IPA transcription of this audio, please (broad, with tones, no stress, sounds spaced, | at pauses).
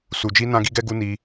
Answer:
s u˨ d͡ʒ i˧ n ã˧ ɡ i˧ ɡ ɛ˧ ɡ u˧ n i˧